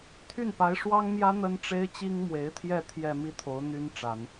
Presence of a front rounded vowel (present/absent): present